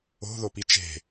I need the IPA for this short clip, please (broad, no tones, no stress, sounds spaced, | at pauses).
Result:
o̤ ð o p i t͡ʃ e̤